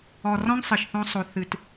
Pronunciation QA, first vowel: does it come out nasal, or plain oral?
oral